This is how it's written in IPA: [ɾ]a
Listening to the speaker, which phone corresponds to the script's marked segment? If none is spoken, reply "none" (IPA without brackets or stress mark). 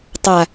tˤ